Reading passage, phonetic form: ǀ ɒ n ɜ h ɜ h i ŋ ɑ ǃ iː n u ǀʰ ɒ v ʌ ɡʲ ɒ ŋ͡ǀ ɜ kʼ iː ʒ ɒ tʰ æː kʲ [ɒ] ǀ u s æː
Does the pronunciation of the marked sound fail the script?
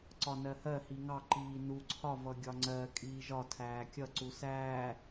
yes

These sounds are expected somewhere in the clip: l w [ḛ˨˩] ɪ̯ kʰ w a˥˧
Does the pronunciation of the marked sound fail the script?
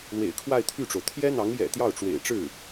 no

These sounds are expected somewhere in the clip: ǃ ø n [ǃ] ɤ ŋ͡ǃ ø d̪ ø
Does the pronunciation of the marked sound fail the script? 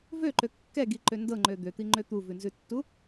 yes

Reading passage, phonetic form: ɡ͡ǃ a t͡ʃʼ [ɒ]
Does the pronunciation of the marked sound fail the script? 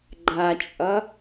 yes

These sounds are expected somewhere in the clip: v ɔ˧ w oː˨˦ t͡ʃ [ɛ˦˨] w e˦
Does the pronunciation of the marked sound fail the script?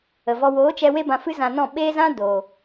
yes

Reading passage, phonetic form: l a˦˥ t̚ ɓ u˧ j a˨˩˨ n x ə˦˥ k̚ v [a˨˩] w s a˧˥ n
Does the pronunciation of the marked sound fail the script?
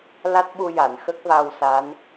yes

